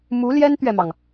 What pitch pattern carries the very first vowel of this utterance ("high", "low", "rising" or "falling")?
rising